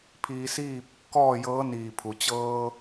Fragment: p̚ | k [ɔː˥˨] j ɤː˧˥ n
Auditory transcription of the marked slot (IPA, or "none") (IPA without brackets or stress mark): ɔː˥˨